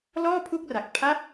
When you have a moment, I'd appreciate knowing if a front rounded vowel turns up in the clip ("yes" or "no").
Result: no